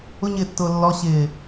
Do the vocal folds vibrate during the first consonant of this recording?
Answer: yes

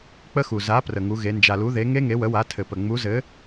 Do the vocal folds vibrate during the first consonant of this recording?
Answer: no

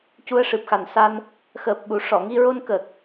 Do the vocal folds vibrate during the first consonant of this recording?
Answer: no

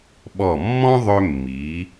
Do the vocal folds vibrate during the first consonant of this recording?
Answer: yes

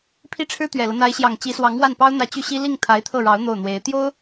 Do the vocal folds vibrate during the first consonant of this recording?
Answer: no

